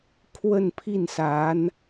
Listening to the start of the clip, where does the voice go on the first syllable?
falling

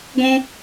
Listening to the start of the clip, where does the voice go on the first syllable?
high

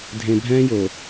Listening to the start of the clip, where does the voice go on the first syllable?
low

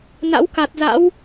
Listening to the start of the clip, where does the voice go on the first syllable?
rising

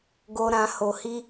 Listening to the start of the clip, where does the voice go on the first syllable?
low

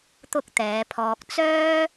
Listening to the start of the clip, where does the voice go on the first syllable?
high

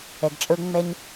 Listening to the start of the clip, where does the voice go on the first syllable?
low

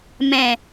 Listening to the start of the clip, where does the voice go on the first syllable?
low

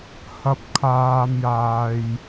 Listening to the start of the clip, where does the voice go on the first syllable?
low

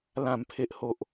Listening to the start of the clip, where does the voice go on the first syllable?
low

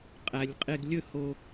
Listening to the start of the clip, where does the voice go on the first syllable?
low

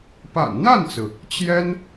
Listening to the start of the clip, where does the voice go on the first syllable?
low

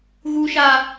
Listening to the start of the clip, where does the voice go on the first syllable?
high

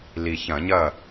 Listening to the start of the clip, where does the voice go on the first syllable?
low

